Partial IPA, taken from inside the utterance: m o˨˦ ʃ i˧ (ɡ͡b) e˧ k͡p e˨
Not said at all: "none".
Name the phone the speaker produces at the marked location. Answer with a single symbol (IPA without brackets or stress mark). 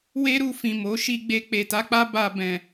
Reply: ɡ͡b